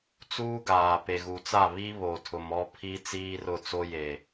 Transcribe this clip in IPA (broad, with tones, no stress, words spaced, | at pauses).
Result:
t͡suː˦ɡaː˨ pe˨ɣu˨t͡sa˦˨ βi˦ βo˨tʰʊ˨m ɔ˦pʰi˦ t͡siː˦rʊ˦˨t͡so˦ je˨